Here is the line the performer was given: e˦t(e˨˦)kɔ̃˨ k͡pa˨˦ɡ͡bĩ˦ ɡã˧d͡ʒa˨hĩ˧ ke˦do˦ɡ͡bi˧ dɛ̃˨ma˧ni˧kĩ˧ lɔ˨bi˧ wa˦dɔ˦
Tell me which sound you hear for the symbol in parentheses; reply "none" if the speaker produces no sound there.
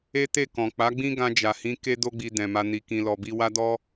e˦˨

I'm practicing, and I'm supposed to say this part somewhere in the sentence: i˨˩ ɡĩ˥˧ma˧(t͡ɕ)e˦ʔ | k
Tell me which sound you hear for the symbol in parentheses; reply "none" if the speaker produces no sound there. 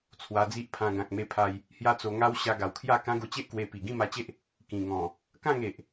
t͡ɕ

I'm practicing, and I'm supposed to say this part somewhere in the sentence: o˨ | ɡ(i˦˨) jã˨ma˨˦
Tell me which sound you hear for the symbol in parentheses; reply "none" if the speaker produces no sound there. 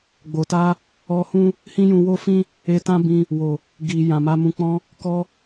i˨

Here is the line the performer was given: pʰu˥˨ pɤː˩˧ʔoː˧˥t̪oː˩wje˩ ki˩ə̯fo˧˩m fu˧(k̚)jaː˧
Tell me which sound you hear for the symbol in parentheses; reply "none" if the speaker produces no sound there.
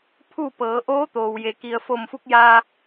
k̚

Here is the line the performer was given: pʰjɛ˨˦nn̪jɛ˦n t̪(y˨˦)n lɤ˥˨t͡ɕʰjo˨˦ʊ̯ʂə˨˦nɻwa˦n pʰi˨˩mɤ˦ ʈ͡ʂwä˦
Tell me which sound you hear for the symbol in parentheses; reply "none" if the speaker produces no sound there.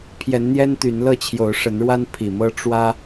y˨˦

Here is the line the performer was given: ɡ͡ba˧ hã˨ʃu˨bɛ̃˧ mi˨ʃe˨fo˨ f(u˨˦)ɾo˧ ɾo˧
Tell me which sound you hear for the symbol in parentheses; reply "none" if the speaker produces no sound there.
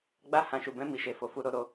u˨˦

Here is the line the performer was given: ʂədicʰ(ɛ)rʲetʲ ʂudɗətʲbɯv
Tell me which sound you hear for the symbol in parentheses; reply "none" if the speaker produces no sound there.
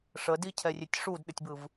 ɛ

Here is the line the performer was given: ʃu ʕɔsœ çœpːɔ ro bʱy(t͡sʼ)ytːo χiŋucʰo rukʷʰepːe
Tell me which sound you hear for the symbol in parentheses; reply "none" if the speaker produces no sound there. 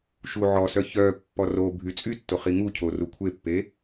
t͡sʼ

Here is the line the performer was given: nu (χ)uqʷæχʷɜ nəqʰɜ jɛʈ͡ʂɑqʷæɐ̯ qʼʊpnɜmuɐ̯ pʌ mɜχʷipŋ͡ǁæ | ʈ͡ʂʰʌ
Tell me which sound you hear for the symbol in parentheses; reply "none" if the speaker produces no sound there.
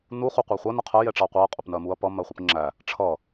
χ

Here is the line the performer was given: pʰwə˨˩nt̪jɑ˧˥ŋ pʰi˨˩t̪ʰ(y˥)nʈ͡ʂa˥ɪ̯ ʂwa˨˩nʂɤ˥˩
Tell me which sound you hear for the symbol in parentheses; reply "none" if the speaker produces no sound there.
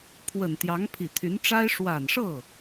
y˧˥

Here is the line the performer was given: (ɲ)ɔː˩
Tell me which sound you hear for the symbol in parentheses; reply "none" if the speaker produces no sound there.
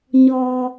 ɲ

